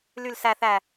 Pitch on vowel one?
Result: low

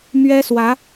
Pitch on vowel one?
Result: high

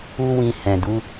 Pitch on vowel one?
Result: high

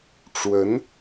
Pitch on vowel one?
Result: rising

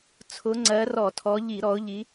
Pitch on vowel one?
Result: rising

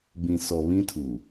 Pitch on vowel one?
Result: low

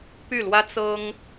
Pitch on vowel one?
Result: falling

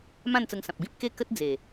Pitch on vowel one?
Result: falling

